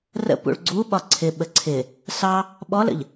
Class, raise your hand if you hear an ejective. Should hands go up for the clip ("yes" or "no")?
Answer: no